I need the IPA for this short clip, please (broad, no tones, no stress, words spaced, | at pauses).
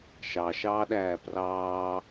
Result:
ʃɑʃɑːɗæː prɑː